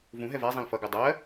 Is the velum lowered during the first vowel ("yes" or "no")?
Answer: yes